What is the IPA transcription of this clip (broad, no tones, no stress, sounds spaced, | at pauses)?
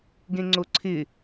ɡ ẽ ŋ͡ǀ o ǀʰ ɪ